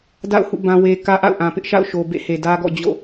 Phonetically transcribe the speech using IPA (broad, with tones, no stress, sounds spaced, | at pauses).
d a̰˦˨ ʊ̯ h ṵ˦˨ b ã˦ w e˦ k ä˦ ʔ a̰˦˨ ʊ̯ ʔ ã˨ p ɪ˦ ʔ ʃ a̰˦˨ ʊ̯ ʃ o˨ b ḛ˦˨ h e˨ d ä˦ ɡ ɔ̰˦˨ d͡ʑ o̰˦˨